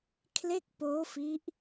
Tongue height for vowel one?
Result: mid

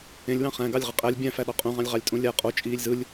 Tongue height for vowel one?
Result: mid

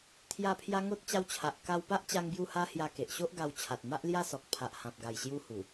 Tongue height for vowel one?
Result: low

